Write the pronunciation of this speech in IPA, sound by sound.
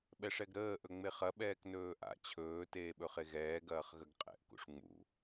ɓ ɛ ʂ ɛ ɡ ɾ əː ʔ ɵ ŋ͡m e χ ɐ ɓ ɛː k n ɵː ʔ a̰ t͡ɕʰ ɵː t eː ɓ ɵ χ e ɣ ɛː ɡ ɐː χ ɣ ə ɡ qʼ ɛ̰ ʔ k ṵ ʂ ŋ͡m ṵ

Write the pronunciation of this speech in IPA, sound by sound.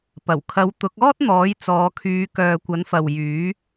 p ɐ˨˩ w kʰ ɐ˨˧ w t̪ ʊ˨˥ k̚ ɔː˥ t̚ n̪ ɔː˨˥ j t͡s ɔː˨˧ kʰ yː˨˧ k œː˨ kʷ ɐ˨˥ n f ɐ˨ w j yː˨˥

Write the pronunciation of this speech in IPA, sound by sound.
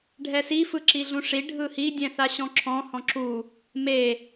ɖʱ ɛ s i f ɯ ǁ i ɮ ũ ʂ i ɖʱ ɯ h i dʲ ɛ̃ θ a ɕ ɔ̃ ǁʰ ɔ̃ h ɔ̃ ǁ u | m e

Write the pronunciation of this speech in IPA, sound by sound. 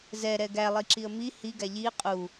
z ɛ ɾ ɛ ɡ æ lˠ i ǁ i ə̯ m i h i ɡ æ ʎ i qʼ u

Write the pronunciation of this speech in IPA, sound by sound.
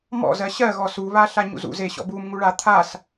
m ɔ̰ z ɜ ɕ ɜ ɣ ɔ s u β a ɬ a ɲ ṵ z ṵ z e ɕ ɔ̰ b u m ŋ u ɭ a t̪ʰ a s

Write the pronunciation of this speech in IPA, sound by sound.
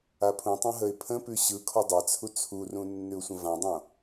a pʰ ũ tˤ ũ ɦ ə ɪ̯ pʰ ə̃ p ʉ ɕ ɯ kʰ ɔ dˤ a t͡sʰ u t͡sʰ u r ũ nː ʉ ʊ̯ sʷ ə̃ v ã dˤ õ

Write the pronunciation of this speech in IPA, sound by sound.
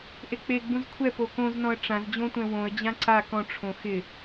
ʔ e k͡p e ɡ͡b ũ z kʷʰ ɛ p o k õ z n ɔ̃ ə̯ ʈ͡ʂ ã z d͡ʑ õ tʷ ɛ̃ w õ ə̯ d͡ʑ ã ǀ a k ɔ̃ ʈ͡ʂʰ õ x ɪ

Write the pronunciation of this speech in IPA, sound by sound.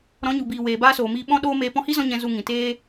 ɾ ɔ̃˨˦ ɲ u˨ b iː˨ w eː˨ b aː˦ s oː˨ m iː˧ ɓ ɔ̃˦ ɗ oː˦ m eː˧ p ɔ̃˧ h i˦ z ɔ̃˧ ɲ ɛ̃˧ z u˧ ŋ ĩ˨ t eː˦

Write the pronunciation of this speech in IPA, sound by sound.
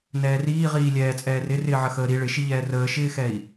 n ɛː r iː ʁ iː lʲ ɛː t͡sʼ ɛː r ɪ r ɪː ʕ ə x əː ɾ i ɭ ɪ ʃ i ʎ ɛː r əː ʃ ɪː x ɛ i̯

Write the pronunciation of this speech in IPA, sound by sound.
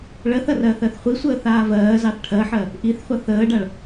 ɭ ɜ θ ɐ r ɜː θ ɜ θ χʷ i sʷ əː θ aː v ɜː z ɑ θ ʈʰ ɜ ħ ɜ | ʔ i θ χʷ ɐ θ əː ɖ a ɭ

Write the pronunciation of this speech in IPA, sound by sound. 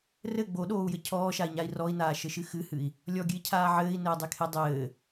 r ɘ ɡ͡b o ɗ oː u̯ j ɘ cʰ ɔː ʃ a i̯ ɲ a i̯ r ɔ i̯ n aː ʃ ɘ ʃ ɨ x ɨ h ɨ i̯ | lʲ ɔ ɡʲ ɨ i̯ cʰ aː ʕ ɘː i̯ n ɘː dˤ e kʰ e dˤ ɘː

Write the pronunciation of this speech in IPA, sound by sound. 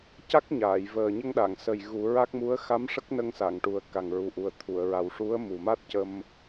c a˦˥ k̚ ɲ aː˨˩˨ j v əː˨˩ ɲ ə˧ ŋ ɗ a˨˩˨ ŋ s ə˨˩ j ɣ u˨˩˦ ɹ a˦˥ k̚ m u˧˥ ə̯ x a˧˥ m ʂ ə˦˥ k̚ n ə˧ ŋ s a˨˩˨ ŋ ʈ u˨˩ ə̯ k a˨˩ ŋ ɹ u˨˩ ʔ u˨˩ ə̯ t̪ʰ u˨˩˨ ə̯ ɹ a˨˩ w ʂ u˧˥ ə̯ m u˨˩ m a˦˥ t̚ c ə˧ m

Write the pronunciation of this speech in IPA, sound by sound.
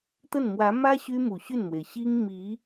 t̪ ə˥˩ n m w ä˧˥ m ä˥ ɕ y˥ m u˨˩ ɕ y˥˩ n m w e˩ ɪ̯ ɕ i˥ ŋ m i˧˥

